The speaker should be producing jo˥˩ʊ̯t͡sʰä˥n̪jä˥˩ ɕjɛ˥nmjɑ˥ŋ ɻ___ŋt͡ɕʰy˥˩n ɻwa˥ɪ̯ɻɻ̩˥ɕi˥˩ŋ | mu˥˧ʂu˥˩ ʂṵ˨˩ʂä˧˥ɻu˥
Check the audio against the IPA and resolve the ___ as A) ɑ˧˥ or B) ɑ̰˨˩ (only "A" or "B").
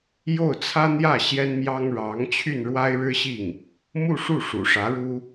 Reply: A